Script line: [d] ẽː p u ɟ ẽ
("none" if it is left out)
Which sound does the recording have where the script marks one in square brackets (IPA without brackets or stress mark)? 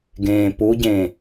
ɡ